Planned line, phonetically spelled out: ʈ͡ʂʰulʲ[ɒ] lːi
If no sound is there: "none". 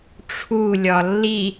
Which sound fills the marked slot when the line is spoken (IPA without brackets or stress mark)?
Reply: ɒ